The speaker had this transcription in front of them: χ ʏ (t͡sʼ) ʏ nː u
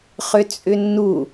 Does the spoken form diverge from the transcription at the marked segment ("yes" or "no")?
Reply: no